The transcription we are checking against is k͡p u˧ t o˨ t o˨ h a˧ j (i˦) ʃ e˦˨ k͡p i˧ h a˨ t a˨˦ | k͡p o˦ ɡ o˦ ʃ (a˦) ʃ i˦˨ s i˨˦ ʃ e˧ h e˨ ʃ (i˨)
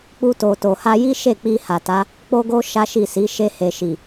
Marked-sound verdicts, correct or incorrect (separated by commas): correct, correct, correct